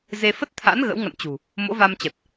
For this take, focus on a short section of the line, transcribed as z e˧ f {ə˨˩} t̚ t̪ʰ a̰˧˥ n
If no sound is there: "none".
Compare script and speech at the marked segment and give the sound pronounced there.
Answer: ə˦˥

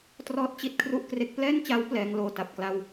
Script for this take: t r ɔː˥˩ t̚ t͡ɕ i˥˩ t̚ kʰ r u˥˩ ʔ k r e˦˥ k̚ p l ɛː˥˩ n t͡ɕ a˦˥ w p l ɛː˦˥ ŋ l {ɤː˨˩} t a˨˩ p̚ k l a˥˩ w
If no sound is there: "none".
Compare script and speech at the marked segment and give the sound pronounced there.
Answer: oː˨˩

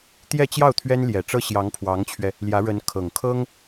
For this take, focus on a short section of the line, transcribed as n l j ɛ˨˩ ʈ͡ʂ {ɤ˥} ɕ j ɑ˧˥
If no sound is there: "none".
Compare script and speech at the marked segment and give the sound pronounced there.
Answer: ɤ˥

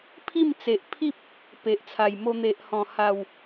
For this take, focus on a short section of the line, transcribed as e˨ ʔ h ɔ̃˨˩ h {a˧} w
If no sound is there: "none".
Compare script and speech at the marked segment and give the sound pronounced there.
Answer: a˨˩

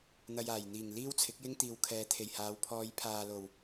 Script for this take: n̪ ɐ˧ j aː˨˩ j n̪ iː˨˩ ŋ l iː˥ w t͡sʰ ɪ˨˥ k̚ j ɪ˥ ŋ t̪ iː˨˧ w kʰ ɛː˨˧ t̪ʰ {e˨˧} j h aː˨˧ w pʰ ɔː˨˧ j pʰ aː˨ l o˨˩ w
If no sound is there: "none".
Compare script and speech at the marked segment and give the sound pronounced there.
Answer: e˨˩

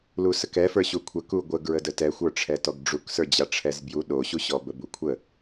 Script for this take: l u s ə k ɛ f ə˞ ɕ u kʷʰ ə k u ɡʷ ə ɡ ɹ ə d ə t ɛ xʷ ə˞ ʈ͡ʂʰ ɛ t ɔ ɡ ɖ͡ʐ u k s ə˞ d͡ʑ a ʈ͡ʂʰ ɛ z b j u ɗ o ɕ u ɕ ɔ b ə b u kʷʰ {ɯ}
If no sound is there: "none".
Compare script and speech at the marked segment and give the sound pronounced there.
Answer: ə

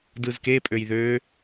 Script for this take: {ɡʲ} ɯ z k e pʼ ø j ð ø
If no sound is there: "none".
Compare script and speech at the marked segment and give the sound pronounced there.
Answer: d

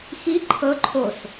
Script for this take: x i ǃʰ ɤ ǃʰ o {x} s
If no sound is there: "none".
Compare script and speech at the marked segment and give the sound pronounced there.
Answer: none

